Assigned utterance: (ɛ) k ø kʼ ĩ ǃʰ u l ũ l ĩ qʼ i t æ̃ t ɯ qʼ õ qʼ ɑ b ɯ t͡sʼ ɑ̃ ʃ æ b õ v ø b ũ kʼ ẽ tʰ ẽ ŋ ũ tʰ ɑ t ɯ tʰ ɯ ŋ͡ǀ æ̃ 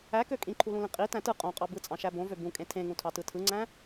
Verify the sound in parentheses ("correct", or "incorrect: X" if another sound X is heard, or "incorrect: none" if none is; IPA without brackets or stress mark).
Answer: incorrect: æ